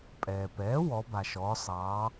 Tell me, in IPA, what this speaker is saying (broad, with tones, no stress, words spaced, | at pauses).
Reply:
pʼɛː˩pɛː˩˥ wɔ˩˧ba˩ʃɔː˩˧ sˤɑː˩˧